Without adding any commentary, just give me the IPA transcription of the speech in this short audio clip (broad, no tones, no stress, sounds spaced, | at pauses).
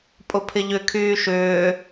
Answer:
pʼ ʊ pʰ ɪ ʎ ʏ kʰ yː ʃ ʏː